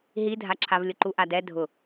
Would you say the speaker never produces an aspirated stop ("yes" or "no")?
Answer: no